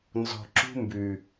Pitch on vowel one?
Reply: low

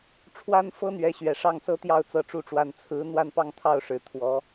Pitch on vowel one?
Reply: high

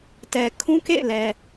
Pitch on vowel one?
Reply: low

